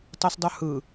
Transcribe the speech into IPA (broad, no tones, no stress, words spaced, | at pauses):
tˤə˞sdˤə˞hɯ